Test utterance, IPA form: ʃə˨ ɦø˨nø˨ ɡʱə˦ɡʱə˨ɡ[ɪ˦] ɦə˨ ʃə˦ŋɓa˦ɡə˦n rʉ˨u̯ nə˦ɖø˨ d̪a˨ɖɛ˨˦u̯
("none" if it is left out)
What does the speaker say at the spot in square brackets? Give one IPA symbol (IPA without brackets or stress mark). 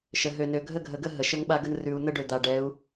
ə˦